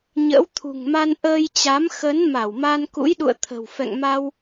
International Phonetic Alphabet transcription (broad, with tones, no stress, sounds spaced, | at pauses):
ɲ ə̰ː˧˥ w t̪ʰ ṳ˨˩ ŋ m a˧ n ʔ əː˧ j t͡ɕ a˨˦ m x ə˨˦ n m a˧˩ w m a˧ n k ṵ˧˥ j ɗ ṵ˧˨ ə̯ t̪ʰ ə̤˨˩ w f ɛ̰˧˨ ŋ m a˧ w